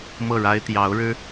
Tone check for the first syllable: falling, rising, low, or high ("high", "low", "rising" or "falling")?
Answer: falling